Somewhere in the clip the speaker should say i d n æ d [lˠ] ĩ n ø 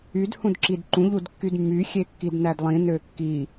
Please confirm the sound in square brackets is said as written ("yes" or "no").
yes